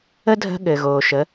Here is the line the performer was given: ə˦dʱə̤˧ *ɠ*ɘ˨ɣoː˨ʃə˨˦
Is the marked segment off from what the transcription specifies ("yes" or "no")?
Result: no